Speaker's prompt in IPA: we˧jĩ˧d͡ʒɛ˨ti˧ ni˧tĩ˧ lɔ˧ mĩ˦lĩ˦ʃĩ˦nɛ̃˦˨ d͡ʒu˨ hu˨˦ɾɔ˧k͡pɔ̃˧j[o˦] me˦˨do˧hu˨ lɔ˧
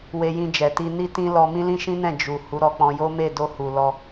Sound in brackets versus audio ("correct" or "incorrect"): correct